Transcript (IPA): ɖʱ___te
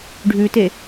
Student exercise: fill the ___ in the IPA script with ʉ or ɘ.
ʉ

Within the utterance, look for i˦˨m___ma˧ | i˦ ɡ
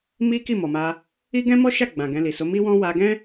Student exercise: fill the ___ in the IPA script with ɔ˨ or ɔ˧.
ɔ˨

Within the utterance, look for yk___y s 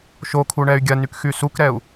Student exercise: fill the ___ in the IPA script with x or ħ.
x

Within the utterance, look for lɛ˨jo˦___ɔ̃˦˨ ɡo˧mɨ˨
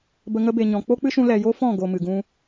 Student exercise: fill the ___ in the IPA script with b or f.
f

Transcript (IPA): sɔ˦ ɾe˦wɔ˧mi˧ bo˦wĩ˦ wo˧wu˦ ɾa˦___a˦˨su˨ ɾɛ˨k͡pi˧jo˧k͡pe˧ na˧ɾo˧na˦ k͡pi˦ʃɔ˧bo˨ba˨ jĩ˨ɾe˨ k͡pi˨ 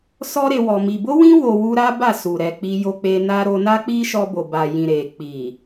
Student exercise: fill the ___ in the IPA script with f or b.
b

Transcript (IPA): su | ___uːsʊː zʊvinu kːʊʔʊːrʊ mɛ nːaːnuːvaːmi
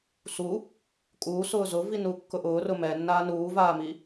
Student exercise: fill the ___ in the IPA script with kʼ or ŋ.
kʼ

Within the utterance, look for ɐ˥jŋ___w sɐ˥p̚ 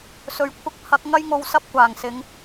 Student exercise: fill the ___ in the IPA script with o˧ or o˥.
o˧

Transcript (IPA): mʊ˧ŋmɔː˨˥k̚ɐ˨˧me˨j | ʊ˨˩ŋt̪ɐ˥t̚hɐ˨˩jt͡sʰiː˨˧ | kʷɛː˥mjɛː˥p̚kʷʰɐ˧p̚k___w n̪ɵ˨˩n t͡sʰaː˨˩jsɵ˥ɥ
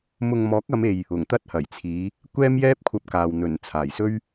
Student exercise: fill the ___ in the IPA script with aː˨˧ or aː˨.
aː˨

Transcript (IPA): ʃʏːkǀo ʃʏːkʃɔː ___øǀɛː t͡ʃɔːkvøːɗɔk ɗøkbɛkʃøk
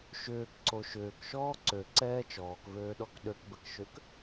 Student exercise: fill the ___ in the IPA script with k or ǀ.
ǀ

